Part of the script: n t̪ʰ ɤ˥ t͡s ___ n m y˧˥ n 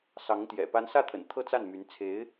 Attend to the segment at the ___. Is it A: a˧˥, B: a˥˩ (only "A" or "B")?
B